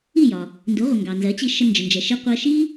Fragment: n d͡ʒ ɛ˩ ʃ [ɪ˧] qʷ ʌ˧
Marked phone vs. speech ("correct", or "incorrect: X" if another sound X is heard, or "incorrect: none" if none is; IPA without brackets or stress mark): correct